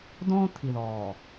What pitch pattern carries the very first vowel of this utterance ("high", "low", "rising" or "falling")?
high